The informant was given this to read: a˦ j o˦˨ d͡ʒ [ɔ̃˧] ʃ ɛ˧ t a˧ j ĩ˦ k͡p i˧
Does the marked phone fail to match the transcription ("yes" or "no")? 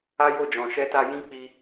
yes